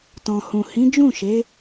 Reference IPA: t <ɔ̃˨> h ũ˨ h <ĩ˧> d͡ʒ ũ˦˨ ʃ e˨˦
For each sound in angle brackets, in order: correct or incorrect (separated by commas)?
correct, incorrect